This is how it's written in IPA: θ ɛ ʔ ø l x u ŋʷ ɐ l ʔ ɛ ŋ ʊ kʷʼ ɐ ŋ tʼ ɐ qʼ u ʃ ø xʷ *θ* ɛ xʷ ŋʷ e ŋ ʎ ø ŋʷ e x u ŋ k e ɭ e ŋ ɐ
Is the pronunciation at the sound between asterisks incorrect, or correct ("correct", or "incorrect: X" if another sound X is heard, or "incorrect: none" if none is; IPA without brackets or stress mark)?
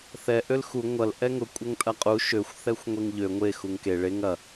correct